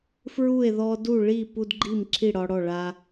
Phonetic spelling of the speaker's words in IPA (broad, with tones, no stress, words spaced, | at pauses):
fɹu˥˨e̯ ðɔ˦du˥˨ɭi˥˨ pu˦dɡ͡ǃi˥˨mǁʰi˥˨ ɽɒ˦ɽɔ˥˨ ɭa˦